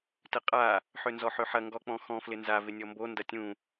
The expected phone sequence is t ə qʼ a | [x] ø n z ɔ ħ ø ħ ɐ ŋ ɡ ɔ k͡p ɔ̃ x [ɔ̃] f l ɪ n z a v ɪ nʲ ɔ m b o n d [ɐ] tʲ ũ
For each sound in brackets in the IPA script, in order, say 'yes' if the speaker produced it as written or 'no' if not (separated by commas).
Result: no, yes, yes